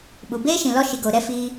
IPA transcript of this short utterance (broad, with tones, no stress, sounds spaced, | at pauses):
ɓ u˨ b eː˦ ʃ ĩ˨ l ɔ˦ ʃ i˨ ɡ oː˨ ɾ ɛ˧ f iː˧